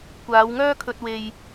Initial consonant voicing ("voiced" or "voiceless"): voiceless